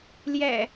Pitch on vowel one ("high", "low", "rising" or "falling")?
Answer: low